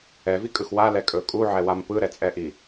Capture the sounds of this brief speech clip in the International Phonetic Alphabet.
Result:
ɛ v i kʼ ɯ x w a l ɛ kʼ ɵ kʼ u ʕ ɛ w a m p ɯ ɾ ɛ t͡sʼ ɛ ʔ i

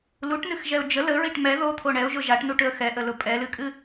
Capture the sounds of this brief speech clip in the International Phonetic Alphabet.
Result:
l u ʈ n ɨ x ʒ ɛ ʊ̯ d͡ʒ ə l ə ɹ i ʈ m ɛ ð o t̪ʰ o ɳ ɛ ʊ̯ ʒ ʊ ʒ a ʈ n u ʈ ʏ ə̯ x ɛ ʔ ə l ʊ pʼ ɛ l ɨ kʼ ɨ

